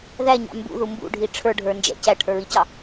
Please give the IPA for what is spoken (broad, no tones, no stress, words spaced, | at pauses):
ðæɲɑ̰ mbṵðu mbṵɖʱi ʈ͡ʂʰə˞ɖʱə˞nd͡ʒæ̰ cæʈʰə˞ɹicɑ